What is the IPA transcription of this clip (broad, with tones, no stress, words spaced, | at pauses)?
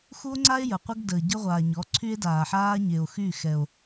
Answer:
xu˦o̯ŋ͡ǀa˦e̯ jə˨qʷə˦ɡ dəː˨ɟə˦ʁʷaː˨ ɲɔ˨˦ǀʰy˦e̯daː˨ħaː˦ ɲe˨o̯xy˦˨ xɛ˨o̯